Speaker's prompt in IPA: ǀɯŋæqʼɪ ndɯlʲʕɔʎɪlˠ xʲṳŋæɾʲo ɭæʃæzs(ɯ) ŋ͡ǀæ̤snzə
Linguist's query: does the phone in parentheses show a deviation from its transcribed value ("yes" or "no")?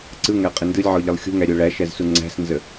yes